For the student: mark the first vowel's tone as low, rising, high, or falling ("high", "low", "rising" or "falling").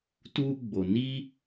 high